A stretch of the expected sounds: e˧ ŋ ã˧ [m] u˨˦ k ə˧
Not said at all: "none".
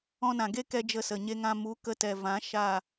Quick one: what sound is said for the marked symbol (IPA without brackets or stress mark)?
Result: m